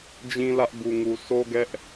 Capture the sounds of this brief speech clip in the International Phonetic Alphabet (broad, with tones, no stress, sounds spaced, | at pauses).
d͡ʑ ĩ˦ l ä˦ ʔ b u˨ ŋ u˨ sʰ o˦ ɡ ɛ˦ ʔ